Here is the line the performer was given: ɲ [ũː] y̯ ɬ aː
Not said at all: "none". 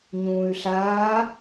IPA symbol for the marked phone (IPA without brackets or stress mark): ũː